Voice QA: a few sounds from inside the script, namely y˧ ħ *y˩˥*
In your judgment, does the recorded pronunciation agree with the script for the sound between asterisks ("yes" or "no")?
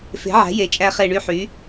yes